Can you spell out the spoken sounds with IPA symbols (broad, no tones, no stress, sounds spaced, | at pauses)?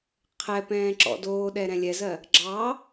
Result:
qʰ ɛ p ɛ̃ː ǁ ɔ̰ d oː ɗ ɛ ɾ ɛ̃ lʲ ɛ z ɜ | ɡ͡ǁ ɑ